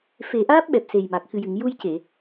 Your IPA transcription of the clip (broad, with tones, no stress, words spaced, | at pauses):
fe˨˩˦ʔaː˦˥p̚ ɓɛ˨˩p̚se˨˩jma˨˩k̚ xɨ˨˩jɨ˨˩˨ŋju˧jce˨˩˨